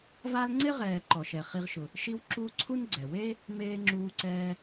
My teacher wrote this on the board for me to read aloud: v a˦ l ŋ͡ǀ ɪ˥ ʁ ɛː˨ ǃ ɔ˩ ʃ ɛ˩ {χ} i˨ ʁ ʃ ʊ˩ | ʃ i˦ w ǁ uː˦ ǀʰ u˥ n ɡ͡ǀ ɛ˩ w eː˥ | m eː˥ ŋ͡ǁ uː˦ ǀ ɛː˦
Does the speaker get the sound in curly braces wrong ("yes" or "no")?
no